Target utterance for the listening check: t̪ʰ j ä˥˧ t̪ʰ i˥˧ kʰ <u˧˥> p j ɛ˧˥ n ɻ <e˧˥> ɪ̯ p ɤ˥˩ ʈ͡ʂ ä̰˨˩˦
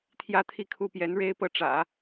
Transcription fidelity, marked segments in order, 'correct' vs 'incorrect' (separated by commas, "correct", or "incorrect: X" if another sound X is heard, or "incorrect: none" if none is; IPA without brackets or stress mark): incorrect: u˥˩, incorrect: e˥